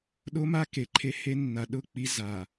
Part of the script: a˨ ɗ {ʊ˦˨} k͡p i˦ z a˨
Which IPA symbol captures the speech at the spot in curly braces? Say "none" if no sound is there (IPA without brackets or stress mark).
ʊ˦˨